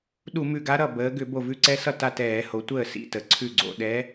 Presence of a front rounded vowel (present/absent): present